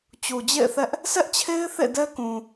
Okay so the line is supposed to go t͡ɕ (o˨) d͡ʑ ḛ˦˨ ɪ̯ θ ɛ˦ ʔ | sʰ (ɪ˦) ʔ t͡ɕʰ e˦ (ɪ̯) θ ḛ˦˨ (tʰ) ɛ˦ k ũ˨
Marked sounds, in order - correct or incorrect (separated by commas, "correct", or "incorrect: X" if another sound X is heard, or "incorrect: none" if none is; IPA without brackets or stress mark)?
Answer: incorrect: u˨, incorrect: ɛ˦, correct, incorrect: d